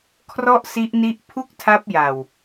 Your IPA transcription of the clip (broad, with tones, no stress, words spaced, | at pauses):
kʰrɔ˥˩ʔsi˦˥ʔni˦˥ʔ pʰu˥˩k̚tʰa˦˥p̚ja˨˩w